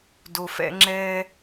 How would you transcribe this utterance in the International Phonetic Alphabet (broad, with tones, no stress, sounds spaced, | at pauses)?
d o˨ f ɛ̰˧ ŋ͡ǁ ɛ˧